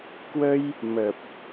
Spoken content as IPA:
k w ə˧ j | m ə˨˩ p̚

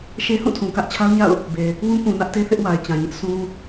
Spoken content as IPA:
ʃ e˦ h ũ˦˨ tʰ ũ˨ k ä˦ ʔ t͡ɕʰ a˦ ʊ̯ ɲ a̰˦˨ ʊ̯ | b e˨ | w ũ˦ k ũ˨ n ä˦ ʔ t e˦ θ ɪ˦ ʔ w a˨ ɪ̯ t͡ɕ ã˨ ɲ ɪ˦ ʔ sʰ ũ˦

